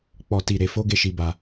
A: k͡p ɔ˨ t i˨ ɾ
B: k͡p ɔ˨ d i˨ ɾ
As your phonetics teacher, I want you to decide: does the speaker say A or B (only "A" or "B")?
A